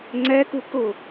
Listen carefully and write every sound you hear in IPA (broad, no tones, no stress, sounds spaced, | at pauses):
ŋ͡ǀ ɛ k u k ʊ